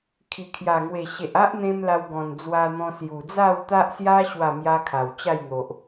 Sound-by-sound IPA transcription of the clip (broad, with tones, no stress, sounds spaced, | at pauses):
kʰ i˨˩ kʰ j a˨˩ ŋ w e˨˩ ɕ e˨ ʔ a˦ ʔ n̪ ẽ˧ m l a˧ w ɡ ɔ̃˨˩ n d͡z w a˧ n̪ ɔ̃˧ s j u˨˩ d͡z a˥˧ w t̪ a˦ ʔ s j a˦ ɕ w a˥˧ m j a˦ kʰ a˨˩ w t͡ɕ a˥˧ j n̪ o˨ ʔ